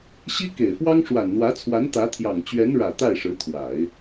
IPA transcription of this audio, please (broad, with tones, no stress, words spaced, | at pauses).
ɕi˥ke˨˩ɪ̯fwɑ˥ŋ ʂwa˨˩nn̪wä˧˥t͡sʰwa˧˥n t̪ä˧˥t̪ʰjɑ˨˩ŋt͡ɕɥɛ˧˥n ɻä˨˩ t̪a˥˩ɪ̯ʂɻ̩˧˥t̪ʰwa˨˩˦ɪ̯